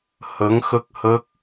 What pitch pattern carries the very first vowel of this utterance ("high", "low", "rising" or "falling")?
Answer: rising